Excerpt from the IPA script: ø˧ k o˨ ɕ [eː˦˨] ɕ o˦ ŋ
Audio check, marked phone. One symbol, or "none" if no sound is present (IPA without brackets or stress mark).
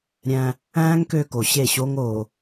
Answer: e˦˨